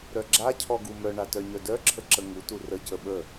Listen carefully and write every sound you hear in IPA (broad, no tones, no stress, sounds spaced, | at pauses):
ɾ œ ɡ͡ǁ a cʰ ɔ ɡ u m œ ɳ a t œ ɲ œ d œ ǁʰ ə ǁ ə ŋ u t u r ə c ə ɓ ə